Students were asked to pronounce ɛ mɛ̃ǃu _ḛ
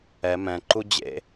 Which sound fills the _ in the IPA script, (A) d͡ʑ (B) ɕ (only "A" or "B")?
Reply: A